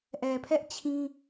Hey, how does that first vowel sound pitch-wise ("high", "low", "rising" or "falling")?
low